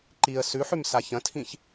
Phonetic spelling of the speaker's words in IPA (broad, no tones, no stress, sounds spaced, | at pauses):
ǃ i ə̯ s ʉ ħ ʉ m s a ç ɐ̃ tʰ ĩ ç